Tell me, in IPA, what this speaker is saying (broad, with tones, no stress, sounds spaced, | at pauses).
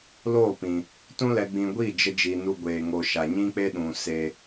l oː˦˨ p ĩ˨ | t ũ˧ l ɛ˨ ɡ͡b ĩ˨ ɡʷ i˦˨ d͡ʒ ə˧ d͡ʒ iː˧ n u˦ ɡʷ eː˧ ŋ oː˧ ʃ a˨ ɲ ĩ˦ k͡p e˦ ɗ ũ˨ s e˧